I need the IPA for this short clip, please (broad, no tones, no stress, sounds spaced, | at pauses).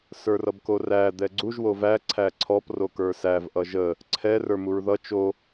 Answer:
s ə˞ r ʌ b k o r æ d̪ ɛ ɡ͡ǀ u ʒ w o v æ ǀʰ æ ǀʰ ɔ p r o k ə˞ s æ v ʔ ʌ ʒ ə | ǀʰ ɛ r ə˞ m u ɹ ð ʌ t͡ʃ o